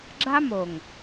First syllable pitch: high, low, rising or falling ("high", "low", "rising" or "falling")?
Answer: high